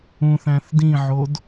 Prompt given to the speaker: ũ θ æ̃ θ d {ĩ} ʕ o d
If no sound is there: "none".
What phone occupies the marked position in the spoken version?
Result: ĩ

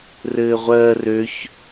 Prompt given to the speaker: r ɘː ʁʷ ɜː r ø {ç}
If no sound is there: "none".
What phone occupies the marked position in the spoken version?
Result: ç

